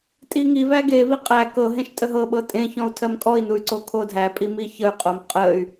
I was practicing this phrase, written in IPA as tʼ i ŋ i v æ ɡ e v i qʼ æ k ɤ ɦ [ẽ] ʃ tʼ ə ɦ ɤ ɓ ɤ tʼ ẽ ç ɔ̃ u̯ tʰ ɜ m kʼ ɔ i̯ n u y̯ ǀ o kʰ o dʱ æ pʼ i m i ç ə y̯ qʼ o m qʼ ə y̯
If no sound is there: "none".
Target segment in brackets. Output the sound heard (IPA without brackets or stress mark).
ẽ